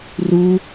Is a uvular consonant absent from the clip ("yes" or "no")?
yes